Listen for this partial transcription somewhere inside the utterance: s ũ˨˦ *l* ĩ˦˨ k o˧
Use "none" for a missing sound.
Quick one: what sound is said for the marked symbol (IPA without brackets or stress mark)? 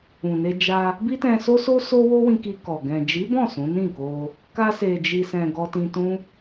n